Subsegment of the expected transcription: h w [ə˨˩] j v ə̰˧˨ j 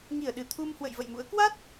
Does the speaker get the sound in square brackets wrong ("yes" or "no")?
yes